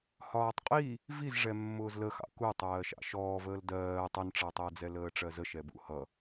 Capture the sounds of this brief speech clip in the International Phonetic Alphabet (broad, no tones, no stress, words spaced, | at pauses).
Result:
hɒːtˤqʼi | vizʐɛmːʊːz ləxɑ̰ ku tˤɜːʃɑ̰ʃɔːvəːl dɜː tˤʌnʈ͡ʂɑtˤʊːd͡zɛ ləːʈ͡ʂɜzə ʃɛbṵ hʌ